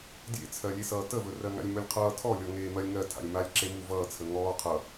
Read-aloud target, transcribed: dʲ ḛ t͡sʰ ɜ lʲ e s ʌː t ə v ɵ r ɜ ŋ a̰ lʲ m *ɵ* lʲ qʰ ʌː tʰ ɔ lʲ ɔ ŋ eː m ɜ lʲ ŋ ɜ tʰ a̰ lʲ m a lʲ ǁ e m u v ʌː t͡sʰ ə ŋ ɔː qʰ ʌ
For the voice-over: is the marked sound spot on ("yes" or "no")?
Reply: yes